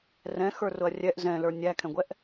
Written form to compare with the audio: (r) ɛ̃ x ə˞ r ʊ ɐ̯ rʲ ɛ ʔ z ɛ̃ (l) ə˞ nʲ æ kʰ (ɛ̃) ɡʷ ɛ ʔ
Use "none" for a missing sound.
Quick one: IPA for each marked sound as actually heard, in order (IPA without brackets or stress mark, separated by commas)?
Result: r, l, ɛ̃